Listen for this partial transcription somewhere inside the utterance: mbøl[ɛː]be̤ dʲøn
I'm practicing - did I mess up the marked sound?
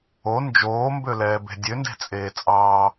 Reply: no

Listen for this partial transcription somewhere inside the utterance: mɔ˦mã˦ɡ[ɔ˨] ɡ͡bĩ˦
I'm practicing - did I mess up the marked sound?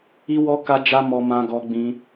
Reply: yes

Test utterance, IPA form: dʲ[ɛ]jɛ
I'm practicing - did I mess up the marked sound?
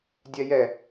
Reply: no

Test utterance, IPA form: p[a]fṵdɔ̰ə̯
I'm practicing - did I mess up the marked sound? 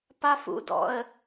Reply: no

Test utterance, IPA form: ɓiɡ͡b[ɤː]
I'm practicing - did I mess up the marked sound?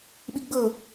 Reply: no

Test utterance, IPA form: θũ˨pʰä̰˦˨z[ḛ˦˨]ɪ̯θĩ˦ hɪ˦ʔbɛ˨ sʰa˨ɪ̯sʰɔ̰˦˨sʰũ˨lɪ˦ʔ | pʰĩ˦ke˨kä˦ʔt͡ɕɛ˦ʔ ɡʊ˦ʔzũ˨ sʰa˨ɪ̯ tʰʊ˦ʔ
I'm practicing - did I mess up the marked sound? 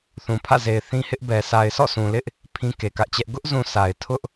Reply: yes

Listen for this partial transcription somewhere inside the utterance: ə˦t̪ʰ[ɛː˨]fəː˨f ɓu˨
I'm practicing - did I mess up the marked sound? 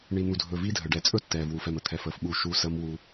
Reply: no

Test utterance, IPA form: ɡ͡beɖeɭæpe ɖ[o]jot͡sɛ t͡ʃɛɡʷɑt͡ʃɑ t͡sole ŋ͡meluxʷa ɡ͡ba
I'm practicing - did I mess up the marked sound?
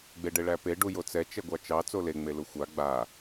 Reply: yes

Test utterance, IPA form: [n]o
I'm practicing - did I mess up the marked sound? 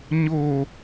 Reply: yes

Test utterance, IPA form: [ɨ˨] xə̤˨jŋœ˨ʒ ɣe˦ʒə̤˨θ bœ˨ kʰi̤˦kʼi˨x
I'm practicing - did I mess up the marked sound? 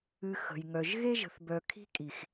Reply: no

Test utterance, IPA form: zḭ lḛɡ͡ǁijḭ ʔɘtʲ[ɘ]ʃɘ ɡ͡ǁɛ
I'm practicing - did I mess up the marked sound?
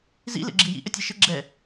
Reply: yes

